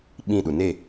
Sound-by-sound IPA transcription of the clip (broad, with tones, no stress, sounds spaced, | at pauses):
ɓ ĩ˦˨ ɗ u˨ n e˦˨